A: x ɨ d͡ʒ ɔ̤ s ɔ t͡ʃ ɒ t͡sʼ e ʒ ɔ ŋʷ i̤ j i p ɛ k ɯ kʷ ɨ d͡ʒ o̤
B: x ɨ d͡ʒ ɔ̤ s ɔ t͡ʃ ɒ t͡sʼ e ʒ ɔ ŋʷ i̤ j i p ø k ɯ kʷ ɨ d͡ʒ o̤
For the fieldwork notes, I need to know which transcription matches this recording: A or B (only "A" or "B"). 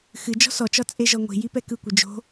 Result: A